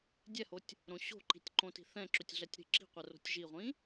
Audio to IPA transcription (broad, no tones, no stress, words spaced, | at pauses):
dʲɛhotʲ | ɾõɕo̤ǃi̤tʲ ǃõti̤θɛ̃ǁʏtʲ ɮɛtʲɾi̤ǁi̤qʷɛ ro̤tʲʒiʁʷĩ